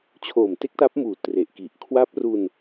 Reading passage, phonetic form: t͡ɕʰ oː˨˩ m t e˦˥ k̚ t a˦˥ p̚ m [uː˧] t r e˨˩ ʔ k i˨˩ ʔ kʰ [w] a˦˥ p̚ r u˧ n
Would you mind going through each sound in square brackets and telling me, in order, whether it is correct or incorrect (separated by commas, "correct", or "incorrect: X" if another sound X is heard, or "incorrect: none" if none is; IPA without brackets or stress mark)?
incorrect: uː˨˩, correct